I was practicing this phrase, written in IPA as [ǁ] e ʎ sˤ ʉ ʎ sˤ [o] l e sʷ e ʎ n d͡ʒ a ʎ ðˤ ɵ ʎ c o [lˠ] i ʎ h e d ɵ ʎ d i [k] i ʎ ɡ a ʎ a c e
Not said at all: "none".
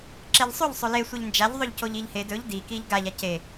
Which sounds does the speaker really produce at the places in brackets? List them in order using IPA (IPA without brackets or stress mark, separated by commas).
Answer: ǁ, ɵ, ʎ, k